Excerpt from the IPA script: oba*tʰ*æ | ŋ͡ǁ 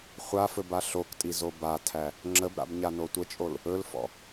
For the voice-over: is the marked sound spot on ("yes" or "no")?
yes